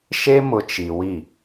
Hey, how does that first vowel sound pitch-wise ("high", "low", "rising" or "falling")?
high